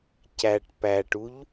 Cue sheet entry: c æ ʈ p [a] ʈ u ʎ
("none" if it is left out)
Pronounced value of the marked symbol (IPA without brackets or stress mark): æ